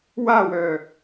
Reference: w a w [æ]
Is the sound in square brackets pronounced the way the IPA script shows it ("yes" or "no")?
no